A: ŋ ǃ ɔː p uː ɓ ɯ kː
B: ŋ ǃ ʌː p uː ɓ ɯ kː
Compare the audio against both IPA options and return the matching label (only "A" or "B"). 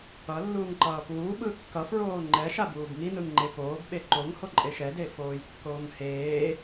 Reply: B